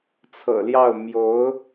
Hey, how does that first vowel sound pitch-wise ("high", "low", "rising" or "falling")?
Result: low